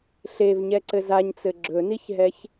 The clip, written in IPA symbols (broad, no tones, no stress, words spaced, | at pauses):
ɬevɲɛ ǀɘzaɲt͡sɘ ɡ͡ǁɵniçɦɛç